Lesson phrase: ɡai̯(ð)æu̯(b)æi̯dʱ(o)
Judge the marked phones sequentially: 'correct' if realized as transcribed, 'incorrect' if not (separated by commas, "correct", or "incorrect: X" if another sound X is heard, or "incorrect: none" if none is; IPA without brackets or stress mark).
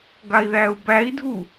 correct, correct, incorrect: u